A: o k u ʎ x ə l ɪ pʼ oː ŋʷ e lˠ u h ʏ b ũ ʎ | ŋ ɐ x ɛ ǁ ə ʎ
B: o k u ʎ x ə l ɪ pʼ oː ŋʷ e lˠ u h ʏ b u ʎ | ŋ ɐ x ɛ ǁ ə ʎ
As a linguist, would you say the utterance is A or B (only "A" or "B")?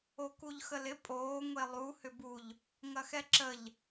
B